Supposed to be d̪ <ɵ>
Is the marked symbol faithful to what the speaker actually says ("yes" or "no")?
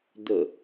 no